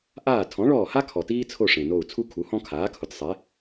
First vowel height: low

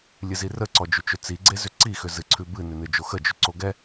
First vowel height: high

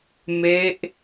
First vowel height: mid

